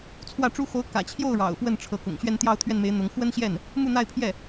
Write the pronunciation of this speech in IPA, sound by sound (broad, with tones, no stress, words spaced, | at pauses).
t͡sʰwä˥˩ʈ͡ʂu˥ xo˧˥ʊ̯kä̰˨˩ t͡ɕʰjo˥˩ʊ̯ ɻɑ̰˨˩ʊ̯fwə˥˩n ʈ͡ʂʰɤ˧˥kʊ̰˨˩ŋ ɕɥɛ˥˧nt̪jɑ˥˧ʊ̯t̪ʰɥɛ˥˩nme˧˥ɪ̯ n̪ʊ˧˥ŋ xwə˥nɕjɛ˥˩n | mu˥˧n̪a˥˧ɪ̯pʰjɛ˥˩